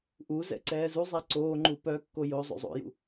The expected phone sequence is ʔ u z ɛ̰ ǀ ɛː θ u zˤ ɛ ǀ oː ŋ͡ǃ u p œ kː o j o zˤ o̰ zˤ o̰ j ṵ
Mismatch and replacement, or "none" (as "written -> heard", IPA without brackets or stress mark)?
θ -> z